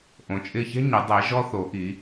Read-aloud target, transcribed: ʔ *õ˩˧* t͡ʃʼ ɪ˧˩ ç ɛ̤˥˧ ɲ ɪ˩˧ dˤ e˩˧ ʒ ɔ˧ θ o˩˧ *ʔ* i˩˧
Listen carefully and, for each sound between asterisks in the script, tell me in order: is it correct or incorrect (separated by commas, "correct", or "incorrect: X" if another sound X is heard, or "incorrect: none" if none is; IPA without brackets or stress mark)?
correct, correct